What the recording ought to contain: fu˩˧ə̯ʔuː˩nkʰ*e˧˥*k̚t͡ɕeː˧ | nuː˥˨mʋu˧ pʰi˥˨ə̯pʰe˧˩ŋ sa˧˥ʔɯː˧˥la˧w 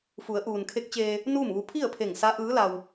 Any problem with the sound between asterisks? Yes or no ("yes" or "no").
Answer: no